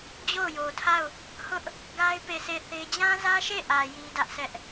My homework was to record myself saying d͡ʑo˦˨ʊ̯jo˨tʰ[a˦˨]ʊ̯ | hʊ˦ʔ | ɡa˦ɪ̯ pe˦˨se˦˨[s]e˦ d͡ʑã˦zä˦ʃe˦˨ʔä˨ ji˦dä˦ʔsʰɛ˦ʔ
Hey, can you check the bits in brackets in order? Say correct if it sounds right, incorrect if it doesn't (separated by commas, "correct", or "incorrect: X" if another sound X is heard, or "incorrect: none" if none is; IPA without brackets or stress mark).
correct, incorrect: θ